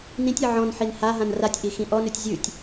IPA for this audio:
n ĩ tʲ i ʕ ɔ̃ n ħ i n h a ɦ ã n r a tʲ ʔ i x ĩ ʔ ɔ n ʉ tʲ zʲ ʉ tʲ

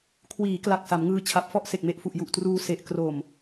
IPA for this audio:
kʰ w iː˩˦ k l a˨˩ k̚ s a˩˦ m ŋ ɯː˧ t͡ɕʰ a˨˩ p̚ f ɔ˥˩ ʔ s e˨˩ k̚ m e˨˩ ʔ f u˨˩ ʔ j u˨˩ ʔ t r uː˧ s e˨˩ ʔ k r o˨˩ m

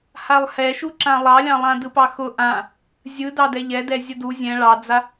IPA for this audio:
h a lˠ h ɛ ʃ u ǁ ã lˠ ɑ lʲ ɑ̃ lˠ ã d ɯ p ɑ x ʊ ʔ ã | zʲ ɯ d ɑ d ɛ ʎ ɛ d ɛ zʲ ʊ d u zʲ ɛ̃ ɭ ɑ d͡z a

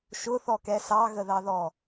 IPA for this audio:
ʃ ʊ θ ɔ k ɛ s ɑ ɣ ə ð ɑ ð ɔ

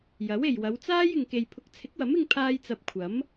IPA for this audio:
j ɐ˨˥ w e˨ j w ɐ˨˧ w t͡s aː˥ j ɪ˨ ŋ k e˨ j pʰ ʊ˨˥ k̚ t͡sʰ ɪ˨˥ k̚ w ɐ˨˥ m ɪ˥ ŋ pʰ aː˥ j t͡s ɐ˧ p̚ kʷʰ ɐ˨˥ m

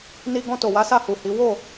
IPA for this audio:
n i˧ ɡ ɔ̃˧ t o˨ w a˨˦ s a˦˨ h u˨ h i˨˦ w o˦˨

